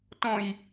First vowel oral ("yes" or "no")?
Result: no